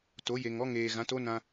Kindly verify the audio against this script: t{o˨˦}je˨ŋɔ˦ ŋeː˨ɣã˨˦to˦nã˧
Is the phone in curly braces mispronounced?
no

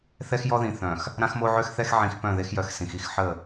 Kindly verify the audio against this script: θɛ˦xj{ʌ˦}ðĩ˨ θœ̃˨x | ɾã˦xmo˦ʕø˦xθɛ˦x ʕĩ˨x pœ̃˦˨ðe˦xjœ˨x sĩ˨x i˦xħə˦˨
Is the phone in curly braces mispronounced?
yes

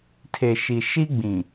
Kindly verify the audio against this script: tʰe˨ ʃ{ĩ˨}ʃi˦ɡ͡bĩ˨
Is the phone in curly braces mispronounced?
yes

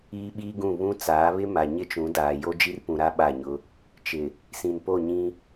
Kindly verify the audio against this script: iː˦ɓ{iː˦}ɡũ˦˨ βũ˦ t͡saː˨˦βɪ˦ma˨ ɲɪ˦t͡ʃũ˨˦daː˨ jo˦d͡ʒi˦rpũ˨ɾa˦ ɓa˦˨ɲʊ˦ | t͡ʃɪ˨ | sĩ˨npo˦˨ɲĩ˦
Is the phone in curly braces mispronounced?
no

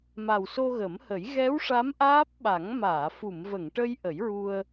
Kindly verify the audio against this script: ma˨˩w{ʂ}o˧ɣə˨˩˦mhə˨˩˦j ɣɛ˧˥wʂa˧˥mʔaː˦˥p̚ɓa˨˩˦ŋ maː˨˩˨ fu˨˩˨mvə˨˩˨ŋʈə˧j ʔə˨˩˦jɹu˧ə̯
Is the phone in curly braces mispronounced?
yes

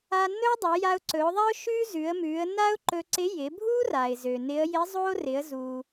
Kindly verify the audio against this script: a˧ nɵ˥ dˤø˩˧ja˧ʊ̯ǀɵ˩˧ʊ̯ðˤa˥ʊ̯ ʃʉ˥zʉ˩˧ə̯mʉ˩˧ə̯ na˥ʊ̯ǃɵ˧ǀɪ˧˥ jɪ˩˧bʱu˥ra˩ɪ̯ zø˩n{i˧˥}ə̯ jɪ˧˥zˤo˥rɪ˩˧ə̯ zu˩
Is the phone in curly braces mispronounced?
yes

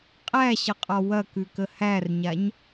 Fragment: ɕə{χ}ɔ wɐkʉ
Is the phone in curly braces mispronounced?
yes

